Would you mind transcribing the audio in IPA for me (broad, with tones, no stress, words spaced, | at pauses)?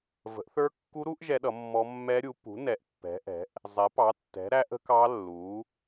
və̤˨˥ʔθə˞˦˥kːu˦˥ɾu˦˥ʔ ʒɛ˦˥ɗʌ˨˥mːɔ˦˥ mːɛ˦˥ɾʲu˨˥ pṳ˨˥nɛ˨˥ʔ pːɛ̤˨˥ʔɛ̤˨˥ʔ | zˤɛ˨˥pɑ˨˥tːɛ̤˨˥ ɾæ˦˥ʔə̤˦˥kɑ˦˥lːu˨˥